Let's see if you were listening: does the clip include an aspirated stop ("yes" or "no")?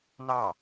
no